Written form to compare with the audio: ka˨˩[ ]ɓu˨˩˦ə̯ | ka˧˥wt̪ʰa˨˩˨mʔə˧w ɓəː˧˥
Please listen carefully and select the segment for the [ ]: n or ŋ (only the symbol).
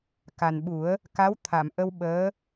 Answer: n